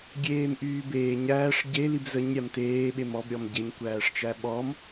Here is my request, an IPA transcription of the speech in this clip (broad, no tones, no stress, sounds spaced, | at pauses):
ɡʲ eː m ʔ yː b eː ɲ æː ʂ ɟ e l i b z ə ɲ ɾʲ a m t eː ɓ e m ɔ b ɾʲ ɔ m ɟ e ɲ kʷ æː ʂ t͡ʃ æ ɓ ɔ m